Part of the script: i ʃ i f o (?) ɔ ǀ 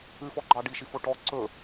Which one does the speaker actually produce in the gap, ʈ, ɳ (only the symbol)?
ʈ